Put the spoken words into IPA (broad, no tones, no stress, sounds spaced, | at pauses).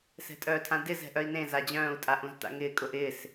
s ɛ̤ tʼ œː tʰ ã d ɪ z ɛ̤ ʔ œ i̯ n ẽ z a d͡ʑ œ̃ː u̯ tʼ a ʔ ũ z t a̰ ŋ ɪː kʼ ʊ ʔ ɪː s